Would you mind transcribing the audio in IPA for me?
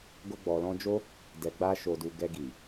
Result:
ɡ o˧ ɡ͡b ɔ˨ l ɔ̃˧ d͡ʒ o˦ | d ɛ˨ ɡ͡b a˧ ʃ o˨ d u˨ ɡ ɛ˧ ɡ i˨

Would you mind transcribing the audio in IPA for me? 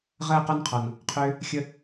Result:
ʁ əː˦˨ q ɔ˦ n qʰ ɔ˨ n | qʰ ʏː˦ | xʲ ə˦

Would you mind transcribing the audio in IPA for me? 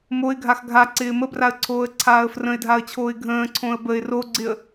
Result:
m o ɪ̯ ɡʱ a x ɡʱ a ǀ ɪː m ə b r a ə̯ ǀʰ oː ə̯ ǀʰ aː ə̯ f r ə̃ ɪ̯ dʱ a ə̯ t͡ɕʰ oː ɪ̯ ɡʱ ə̃ː ǀʰ õ ə̯ b ə ɪ̯ r o ɡ͡ǀ ɪ ə̯

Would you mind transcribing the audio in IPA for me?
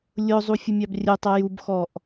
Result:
lʲ ʊ zˤ u fʲ ʊ mʲ ɑ b rʲ ʊ tˤ ʌ j u b x ɔ ʔ

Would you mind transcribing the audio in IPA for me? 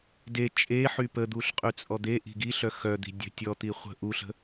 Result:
d e t͡ʃʼ e ħ y p ə d̪ u ɬ qʼ y t͡sʼ ɔ d̪ e ʔ i̤ ɡ i ɬ œ x œ d̪ i̤ dʲ ə̤ tʲ ɔ t̪ i χʷ ə̤ ʔ u ɬ ə̤

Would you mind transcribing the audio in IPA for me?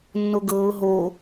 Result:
nː o ɡ ɤː ʊ̯ ɦ o

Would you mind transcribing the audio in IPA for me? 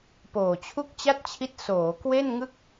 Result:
p oː˨˩ t͡ɕʰ u˥˩ k̚ t͡ɕ a˥˩ t̚ t͡ɕʰ i˦˥ t̚ s oː˩˦ k w e˥˩ n ŋ ɯ˥˩ k̚

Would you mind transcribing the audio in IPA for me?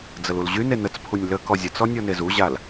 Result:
d͡z ə l u l ʑ y n e n ə t͡s pʰ u nʲ l ə k ɔ zʲ ə t͡s ɔ nʲ ɔ n e z u ʑ a l

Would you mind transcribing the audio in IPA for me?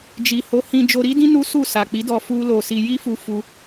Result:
d͡ʒ i˨ h o˨˦ h ĩ˧ d͡ʒ o˧ ɾ i˦ d ĩ˦ n u˦ s u˦˨ s a˨ k͡p i˨˦ d ɔ˧ f u˦ l o˧ s i˧ j i˦ f u˧ f u˧

